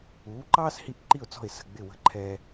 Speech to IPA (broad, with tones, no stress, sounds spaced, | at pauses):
uː˩˥ ǃ ɑː˥ s h i˧ ʔ ǃ i˥˩ ʊ̯ t͡s ɔ̤˥˩ ɪ̯ s ə̤˥˩ ɡ͡b ɪ˥˩ w ə̤˧ ǃʰ ɛː˧